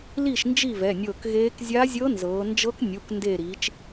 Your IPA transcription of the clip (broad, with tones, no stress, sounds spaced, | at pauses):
l i˥˩ ʃ n d͡ʒ i˥˩ v ɛ˩˧˩ nʲ ɤː˧˩ k ɣ eː˧˥ k zʲ a˧˥ zʲ ɤ˧˥ n z ɤː˩˧ n d͡ʒ ɤ˧˥ k nʲ u˩˧˩ k n d eː˧˩ ɾ i˩˧ t͡ʃ